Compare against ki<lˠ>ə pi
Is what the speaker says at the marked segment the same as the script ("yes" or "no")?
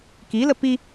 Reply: no